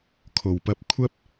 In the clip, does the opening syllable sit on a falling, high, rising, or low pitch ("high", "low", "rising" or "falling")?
low